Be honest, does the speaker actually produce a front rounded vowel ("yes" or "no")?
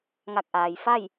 no